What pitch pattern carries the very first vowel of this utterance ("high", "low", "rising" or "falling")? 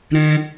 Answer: high